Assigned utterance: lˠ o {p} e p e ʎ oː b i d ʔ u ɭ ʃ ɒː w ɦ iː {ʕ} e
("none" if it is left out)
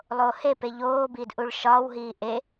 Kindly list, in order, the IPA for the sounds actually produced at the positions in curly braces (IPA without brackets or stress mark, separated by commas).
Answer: h, ʔ